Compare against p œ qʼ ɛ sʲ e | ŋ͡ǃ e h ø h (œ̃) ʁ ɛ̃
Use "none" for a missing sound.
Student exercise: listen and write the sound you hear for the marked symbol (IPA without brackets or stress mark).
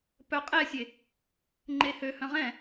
œ̃